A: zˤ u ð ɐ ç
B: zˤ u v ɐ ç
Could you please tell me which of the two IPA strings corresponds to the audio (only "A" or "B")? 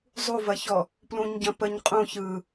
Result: B